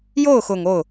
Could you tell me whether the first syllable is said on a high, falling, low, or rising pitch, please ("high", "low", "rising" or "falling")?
falling